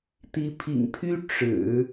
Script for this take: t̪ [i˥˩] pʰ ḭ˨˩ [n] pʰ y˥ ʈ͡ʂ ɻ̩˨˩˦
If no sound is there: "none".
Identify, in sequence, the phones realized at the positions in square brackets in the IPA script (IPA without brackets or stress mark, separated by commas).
i˧˥, ŋ